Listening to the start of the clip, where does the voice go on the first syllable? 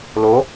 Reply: rising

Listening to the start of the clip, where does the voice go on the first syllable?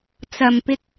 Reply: low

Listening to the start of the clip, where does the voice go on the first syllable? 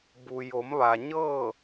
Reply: low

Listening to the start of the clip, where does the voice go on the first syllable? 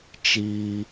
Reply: high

